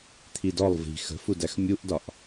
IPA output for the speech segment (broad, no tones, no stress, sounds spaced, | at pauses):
t̪ʰ i d ɔ lˠ v i̤ x ə̤ f u d æ x mʲ u ʔ d ɒ ʔ